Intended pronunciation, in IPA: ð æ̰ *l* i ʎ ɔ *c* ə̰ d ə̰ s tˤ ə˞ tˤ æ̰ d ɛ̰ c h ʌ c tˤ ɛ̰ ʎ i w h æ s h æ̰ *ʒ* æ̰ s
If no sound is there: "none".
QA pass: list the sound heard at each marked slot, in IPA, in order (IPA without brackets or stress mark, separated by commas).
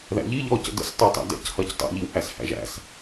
ʎ, c, ʒ